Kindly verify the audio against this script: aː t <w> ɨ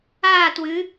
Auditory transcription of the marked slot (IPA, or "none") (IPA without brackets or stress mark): w